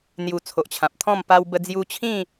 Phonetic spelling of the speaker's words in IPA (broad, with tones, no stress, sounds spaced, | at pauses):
n̪ j u˨˩ t͡sʰ o˨ ʔ t͡ɕʰ ã˨ p̚ t̪ʰ ɔ̃˥˧ m p a˧ w b ə˧ d͡z j u˧ t͡ɕʰ ĩ˥˧